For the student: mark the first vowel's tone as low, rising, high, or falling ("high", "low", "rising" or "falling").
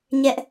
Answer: high